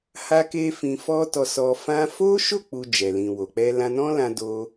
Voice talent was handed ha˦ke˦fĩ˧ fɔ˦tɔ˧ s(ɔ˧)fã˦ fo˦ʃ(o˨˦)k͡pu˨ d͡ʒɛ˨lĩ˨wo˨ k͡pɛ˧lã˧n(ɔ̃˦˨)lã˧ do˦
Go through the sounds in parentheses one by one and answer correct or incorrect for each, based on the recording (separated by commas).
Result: correct, incorrect, incorrect